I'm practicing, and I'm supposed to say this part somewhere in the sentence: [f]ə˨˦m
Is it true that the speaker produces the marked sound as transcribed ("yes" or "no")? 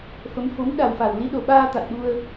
yes